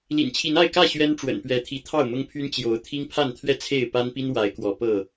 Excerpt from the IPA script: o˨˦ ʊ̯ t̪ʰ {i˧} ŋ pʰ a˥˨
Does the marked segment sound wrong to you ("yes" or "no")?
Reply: yes